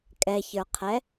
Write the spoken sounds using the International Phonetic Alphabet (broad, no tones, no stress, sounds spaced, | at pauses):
kʼ ɛ ç ə˞ qʰ ɛ